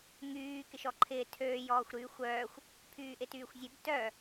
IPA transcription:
ŋyː kɪʃɔǃʰɪː tʰøː jɔːxʷɾyːxʷœːxʷ | pʰyːʔɪtyːxʷzʲøb tœ

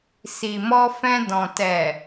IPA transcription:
si˨mɔ˧ fɛ̃˧ dɔ̃˨ tɛ˨

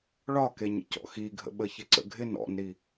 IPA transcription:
ɭɒke ɲə̰cɔ̰xiɡʱə̰ ɓəçɪǀə̰ɡʱɪn ɔ̰nɾi

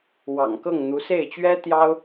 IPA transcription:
wɑ̰˨˩ŋkɤ˥˩ŋn̪u˧˥ se˥˩ɪ̯t͡ɕɥɛ˥t̪jɑ˥ʊ̯

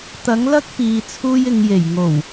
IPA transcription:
t̪ɐ˨˥ŋlɐ˥k̚piː˨ t͡sʰuː˧jɪ˨ŋje˨˩j ŋo˨˩w

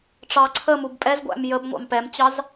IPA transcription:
ʈ͡ʂɑ ǀʰəmub pʼɛzɡʷæ̰m jəbŋʷɑ̰m pɛmt͡ɕɑz

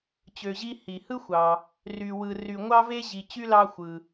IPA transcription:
t͡ɕø˨ʑi˦ hi˩hɯ˥xʷɑ˩ | ry˨ wɯ˨ ry˨ ŋʷɑ˥ve˥ ʑi˨ t͡ɕy˥lɑ˦xʷɯ˩

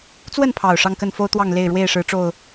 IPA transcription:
t͡swə˥˨npʰɑ˨˩ʊ̯ ʂɑ˥˨ŋkə˥˨nfo˦ʊ̯t̪wɑ˥˨ŋ le˥˨ɪ̯ɻwe˥˨ɪ̯ ʂɻ̩˨˦ʈ͡ʂo˨˩ʊ̯

